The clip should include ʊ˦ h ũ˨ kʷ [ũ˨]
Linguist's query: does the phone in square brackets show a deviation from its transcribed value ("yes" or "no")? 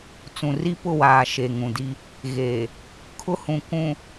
no